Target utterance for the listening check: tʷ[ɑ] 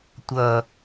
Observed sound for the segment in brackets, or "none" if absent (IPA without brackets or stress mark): ʌ